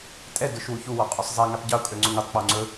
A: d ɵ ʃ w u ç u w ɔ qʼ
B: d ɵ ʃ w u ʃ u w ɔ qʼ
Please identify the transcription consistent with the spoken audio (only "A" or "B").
A